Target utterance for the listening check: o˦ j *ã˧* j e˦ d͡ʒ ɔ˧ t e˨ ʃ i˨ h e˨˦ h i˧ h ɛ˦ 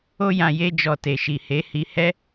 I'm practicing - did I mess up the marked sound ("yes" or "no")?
no